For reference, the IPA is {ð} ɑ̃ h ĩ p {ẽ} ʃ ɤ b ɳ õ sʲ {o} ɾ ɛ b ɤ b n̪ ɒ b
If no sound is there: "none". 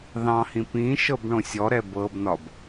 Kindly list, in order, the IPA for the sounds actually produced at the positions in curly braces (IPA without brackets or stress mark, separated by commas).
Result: ð, ĩ, ɔ